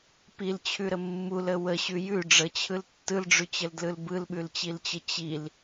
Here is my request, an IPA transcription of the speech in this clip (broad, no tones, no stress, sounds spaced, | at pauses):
p i l t͡ɕʰ ʉ ɾ ə mː u l ə w ə ɕ ʉ j ʉ ɖ͡ʐ ə t͡ɕʰ ɯ l tː ɯ l ɖ͡ʐ ʉ t͡ɕ ə l d l ɯ l b ɯ l ɓ ʉ l t͡ɕ i l t͡ɕ ə t͡ɕ i l